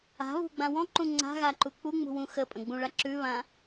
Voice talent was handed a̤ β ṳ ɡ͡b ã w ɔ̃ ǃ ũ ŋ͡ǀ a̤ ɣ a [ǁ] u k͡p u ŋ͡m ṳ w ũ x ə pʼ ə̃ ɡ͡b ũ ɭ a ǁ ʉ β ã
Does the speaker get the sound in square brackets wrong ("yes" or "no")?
yes